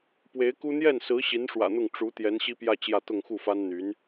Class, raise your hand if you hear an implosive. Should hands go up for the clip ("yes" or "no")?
no